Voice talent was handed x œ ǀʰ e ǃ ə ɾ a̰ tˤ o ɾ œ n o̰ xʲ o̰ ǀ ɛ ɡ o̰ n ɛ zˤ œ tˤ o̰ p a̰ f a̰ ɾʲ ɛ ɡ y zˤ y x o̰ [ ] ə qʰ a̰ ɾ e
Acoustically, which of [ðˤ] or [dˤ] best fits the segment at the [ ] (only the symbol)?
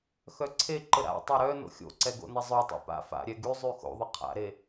ðˤ